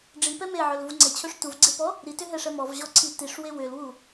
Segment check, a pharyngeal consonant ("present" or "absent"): present